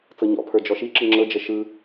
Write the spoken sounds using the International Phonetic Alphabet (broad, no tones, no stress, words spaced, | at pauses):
t͡sɤɲɔ̰pʰə˞ d͡ʒɔʃiǁɯ ŋ͡ǁɤd͡ʒə ʃɯ